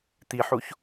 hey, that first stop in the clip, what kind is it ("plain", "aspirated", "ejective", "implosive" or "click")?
plain